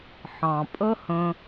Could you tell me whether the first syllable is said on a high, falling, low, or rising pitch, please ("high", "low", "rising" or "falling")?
low